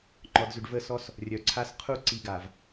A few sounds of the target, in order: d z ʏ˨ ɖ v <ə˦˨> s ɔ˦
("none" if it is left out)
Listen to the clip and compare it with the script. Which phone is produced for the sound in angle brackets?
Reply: ə˦˨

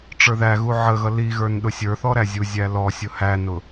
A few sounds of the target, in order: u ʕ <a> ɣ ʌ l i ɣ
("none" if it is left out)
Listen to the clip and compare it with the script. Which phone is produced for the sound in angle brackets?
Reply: ə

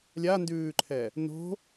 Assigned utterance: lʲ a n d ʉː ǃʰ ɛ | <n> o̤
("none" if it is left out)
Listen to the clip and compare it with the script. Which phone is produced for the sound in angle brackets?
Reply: n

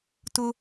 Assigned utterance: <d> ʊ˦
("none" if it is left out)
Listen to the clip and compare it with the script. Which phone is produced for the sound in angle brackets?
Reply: t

